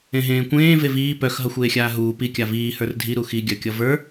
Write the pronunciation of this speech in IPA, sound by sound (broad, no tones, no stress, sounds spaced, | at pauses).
ẽ ɦ ẽː kʷ ẽː v e v iː p œ x ɦ ʌ xʷ eː xʲ aː ɦ uː p i kʲ a v iː h ə˞ r dʱ i ɾ u x i ɡʲ œ kʲ ʌ v ə˞